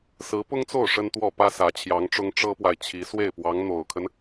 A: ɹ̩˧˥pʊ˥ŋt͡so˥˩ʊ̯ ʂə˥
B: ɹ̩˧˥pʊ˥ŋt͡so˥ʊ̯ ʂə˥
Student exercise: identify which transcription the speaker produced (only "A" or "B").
A